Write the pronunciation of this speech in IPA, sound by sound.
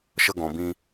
ʃ ə˧ ɡ ɔ̃˨ b ĩ˧

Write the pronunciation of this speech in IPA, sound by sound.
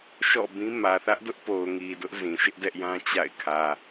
ʃ ɔ̰˦˨ b ĩ˦ m ä˨ θ ä˦ ʔ d ʊ˦ ʔ p o˨ ʊ̯ ŋ i˨ d ʊ˦ ʔ z ĩ˨ ʃ ɪ˦ ʔ d ɛ˦ ʔ j ã˦ t͡ɕ a̰˦˨ ɪ̯ kʰ ä˨

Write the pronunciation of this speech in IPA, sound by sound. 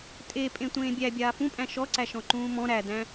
tʼ e pʼ ẽ tʷ ẽː bʲ æ bʲ aː f ũ pʼ æ̃ ʃ ɔ ǀ æ ʃ ɔ̃ ǃ ũː m ɔ̃ ɾ æ d æ̃

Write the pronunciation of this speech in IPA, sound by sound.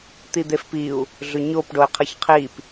t̪ i d̪ e f p i u̯ | ɮ ʏ ɲ o p ɖ o i̯ qʰ ʌ ç qʰ i p

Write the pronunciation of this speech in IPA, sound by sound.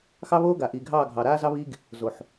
x ɑ˦ β oː˦ ɡ a˨ ʔ iː˨ ɡʱ ɑː˦˨ ɡʱ ɑ˨ ɾ aː˦ z ɑ˦ β iː˦ ɡ | z o˨ ħ

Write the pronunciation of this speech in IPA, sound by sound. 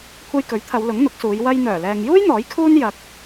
kʷʰ ɐ˧ j k ɵ˨˥ ɥ t̪ʰ ɐ˨˧ w l ʊ˨˥ ŋ n̪ ʊ˨˥ k̚ s uː˨˧ j w ɐ˧ j n̪ œː˨˩ l ɛː˨ ŋ j uː˥ j n̪ ɔː˨˥ j kʰ uː˥ n j ɐ˧ k̚

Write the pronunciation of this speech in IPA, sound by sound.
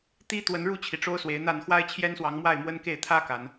t̪ i˦ t̪ w ə˨˦ n ɻ u˥˨ t͡ɕʰ i˩ ʈ͡ʂ o˦ ʊ̯ s w e˨˦ ɪ̯ n̪ a˥˨ n x w a˦ ɪ̯ t͡ɕʰ j ɛ˦ n s w ɑ˨˦ ŋ m w a˥˨ ɪ̯ m w ə˦ n k e˥˨ ɪ̯ t̪ʰ ä˦ k a˨˦ n

